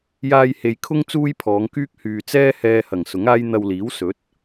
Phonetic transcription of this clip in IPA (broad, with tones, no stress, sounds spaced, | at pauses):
j aː˧ j h e˨ j kʰ ʊ˥ ŋ t͡s uː˥ j pʰ ɔː˨˧ ŋ k yː˥ k̚ h yː˨ t͡s ɛː˥ h ɛː˧ h ɐ˨˩ ŋ s ʊ˨˥ ŋ aː˥ j n̪ ɐ˧ w l iː˨˥ w s ɵ˨˥ t̚